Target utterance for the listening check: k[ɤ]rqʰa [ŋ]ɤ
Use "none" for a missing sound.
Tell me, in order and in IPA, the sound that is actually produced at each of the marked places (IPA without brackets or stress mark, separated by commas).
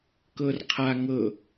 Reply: ɤ, ŋ